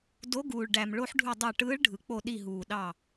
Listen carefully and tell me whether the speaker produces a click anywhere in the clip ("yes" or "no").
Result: no